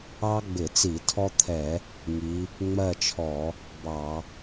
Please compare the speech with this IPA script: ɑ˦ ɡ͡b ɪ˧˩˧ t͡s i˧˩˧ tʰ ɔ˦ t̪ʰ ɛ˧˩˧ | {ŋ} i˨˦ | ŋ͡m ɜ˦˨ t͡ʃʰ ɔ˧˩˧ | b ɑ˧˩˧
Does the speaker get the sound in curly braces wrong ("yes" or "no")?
no